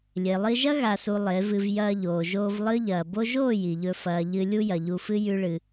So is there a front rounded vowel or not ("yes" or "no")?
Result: no